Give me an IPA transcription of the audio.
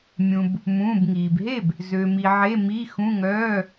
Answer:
mʲ ũ˩ b | m ũː˩˧˩ b ŋ iː˩ b ɦ e˥˩ b | z ø˩ m i˩ ʕ e˩˧˩ m i˩˧˩ x ũ˩˧˩ ŋ œː˩˧˩

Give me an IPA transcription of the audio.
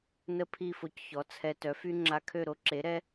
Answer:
n ə˥˩ pʰ i˥˩ f o˧ c ç ɔ˩˥ t͡sʰ ɛ˧ t œ˩˥ f y˥ ŋ͡ǁ a˧ kʰ ø˥˩ ɾ o˥ ǁ e˩˥ ɾ ɛ˥

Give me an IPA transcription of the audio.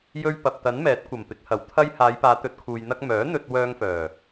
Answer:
j ɵ˧ ɥ p ɐ˨ p̚ t̪ ɐ˨˥ n m ɛː˨˥ t̚ kʷ ɐ˨˩ m p ɪ˨˥ k̚ h ɐ˨˥ w t̪ʰ ɐ˥ j h aː˨˧ j p aː˨˧ t̪ ɵ˨˥ t̚ kʰ uː˨ j n̪ ɐ˧ k̚ m œː˨˥ n̪ ɵ˧ t̚ w œː˧ ŋ f œː˨˩

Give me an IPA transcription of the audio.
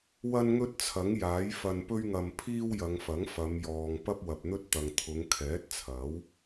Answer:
w ɐ˥ n ŋ ɵ˥ t̚ t͡sʰ ɐ˨˥ ŋ j aː˨˥ j f ɐ˧ n p ɵ˥ ɥ ŋ ɐ˧ m pʰ iː˥ w j ɐ˨˧ ŋ f ɐ˨˥ ŋ f ɐ˨˧ m j ɔː˨ ŋ p ɐ˥ p̚ w ɐ˨ p̚ n̪ ɵ˥ t̚ t̪ ɐ˨ ŋ t̪ʰ ʊ˨˧ ŋ kʰ ɛː˨˥ t̚ t͡sʰ ɐ˨˥ w

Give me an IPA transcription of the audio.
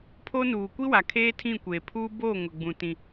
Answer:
pʰ o˦ n uː˨ kʷ i˦ w a˨ kʰ eː˦ tʰ ĩ˦˨ kʷ eː˨ pʰ uː˦ b oː˦˨ ŋ ʊ˨ ɡ͡b ũ˨ t ĩ˦

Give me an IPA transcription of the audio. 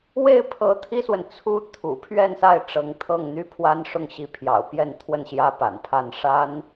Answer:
w e˥˩ ɪ̯ pʰ ɤ˧˥ t̪ʰ i˥ s w ə˨ n t͡sʰ u˥ t̪ʰ ṵ˨˩ pʰ ɥ ɛ˥˧ n s a˥˩ ɪ̯ ʈ͡ʂ ɤ˧˥ ŋ t̪ʰ ɤ˥˩ ŋ n̪ y˥ pʰ w a˥ n ʂ ʊ˥˩ ŋ ɕ i˧˥ pʰ j ɑ̰˨˩ ʊ̯ p j ɛ˥˧ n t̪ʰ w ə˥˩ n ɕ j ä˥ p a̰˨˩ n pʰ a˥˩ n ʂ a˥ n

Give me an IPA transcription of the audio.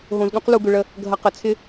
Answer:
ɦ õ˧ z ɠ ũ˦ q l u˧ ɡ ʏ˧ ɭ ə˧ | ɡʱ ɐ˧ q ə˨˦ t͡sʰ ɪ˦

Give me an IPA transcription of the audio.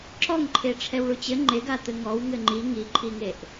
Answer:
ǁ ɔ ŋ ǃʰ e ʈ͡ʂʰ ɛ w ɭ u t͡ɕ ɘ ŋ͡ǃ e ɡ a t̪ ɘ ŋ ɔ w ŋ ɘ ŋ͡ǃ i ŋ i ǃʰ i ŋ e ʔ

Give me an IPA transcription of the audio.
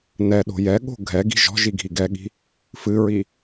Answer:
n ɛ ɗ o̤ j ɛ ɠ o̤ ɡʱ ɛ ɡ i̤ ʒ ɔ̤ ʒ i ɡʱ i ɡ ɛ ɠ i̤ | f ɨ ɹ i

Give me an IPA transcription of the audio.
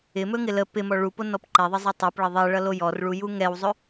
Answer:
ɪ m ɵ ŋ ɪ l ə p ɪ m ɔ ɭ u p o n ɔ p ǃ ɛ ðˤ ə zˤ ɛ tˤ ɛ p ɭ ə ðˤ ɛ ɭ ʌ l o j ɔ r ɭ u j u ŋ ɛ w zˤ ɵ

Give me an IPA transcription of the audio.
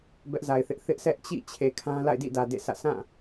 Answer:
b ɛ˦ ʔ z a˨ ɪ̯ θ ɪ˦ ʔ θ ɪ˦ ʔ s ɛ˦ ʔ t͡ɕ ḭ˦˨ t͡ɕʰ e˨ kʰ ã˦ l a̰˦˨ ɪ̯ d ḭ˦˨ d ä˨ d ḛ˦˨ s ä̰˦˨ s ã˦˨

